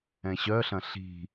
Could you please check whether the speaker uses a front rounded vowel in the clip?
yes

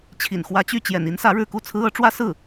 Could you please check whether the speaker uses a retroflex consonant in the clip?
yes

